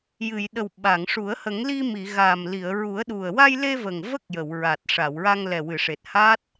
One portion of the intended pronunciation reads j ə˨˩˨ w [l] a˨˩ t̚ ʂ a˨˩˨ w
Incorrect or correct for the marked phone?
incorrect: ɹ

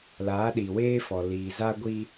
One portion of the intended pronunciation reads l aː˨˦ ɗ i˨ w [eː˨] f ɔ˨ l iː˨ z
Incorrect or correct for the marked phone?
incorrect: eː˦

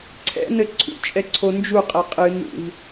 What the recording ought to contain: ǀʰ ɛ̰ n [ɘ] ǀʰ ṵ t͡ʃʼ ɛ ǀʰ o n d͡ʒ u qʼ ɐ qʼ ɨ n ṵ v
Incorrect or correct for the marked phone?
correct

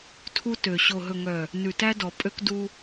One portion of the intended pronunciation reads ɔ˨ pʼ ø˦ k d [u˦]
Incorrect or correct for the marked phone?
correct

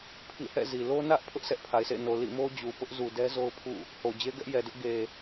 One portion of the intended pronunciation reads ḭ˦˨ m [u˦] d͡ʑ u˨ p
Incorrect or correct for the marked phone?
incorrect: o˦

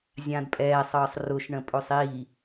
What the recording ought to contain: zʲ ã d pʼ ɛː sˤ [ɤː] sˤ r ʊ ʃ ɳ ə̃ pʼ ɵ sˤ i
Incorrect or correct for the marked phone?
correct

